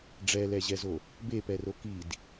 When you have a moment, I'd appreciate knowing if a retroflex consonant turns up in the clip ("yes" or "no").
yes